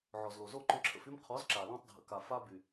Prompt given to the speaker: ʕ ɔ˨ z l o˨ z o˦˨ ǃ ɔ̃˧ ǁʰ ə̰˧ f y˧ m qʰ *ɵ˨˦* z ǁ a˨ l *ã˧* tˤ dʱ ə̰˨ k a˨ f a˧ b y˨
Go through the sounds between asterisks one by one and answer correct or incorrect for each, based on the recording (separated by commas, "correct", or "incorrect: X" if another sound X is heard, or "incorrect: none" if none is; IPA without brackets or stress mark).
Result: incorrect: ɔ˨˦, correct